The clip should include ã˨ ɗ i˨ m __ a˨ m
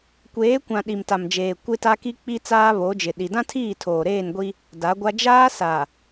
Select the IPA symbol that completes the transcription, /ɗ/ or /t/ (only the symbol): t